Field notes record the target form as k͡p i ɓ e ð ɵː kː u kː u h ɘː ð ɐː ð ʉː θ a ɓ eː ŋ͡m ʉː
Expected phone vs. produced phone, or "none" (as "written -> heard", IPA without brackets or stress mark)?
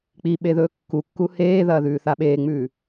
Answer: ɘː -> eː